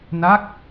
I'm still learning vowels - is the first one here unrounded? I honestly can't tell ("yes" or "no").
yes